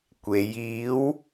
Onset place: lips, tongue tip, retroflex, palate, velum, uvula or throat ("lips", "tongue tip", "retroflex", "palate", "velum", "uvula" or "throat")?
velum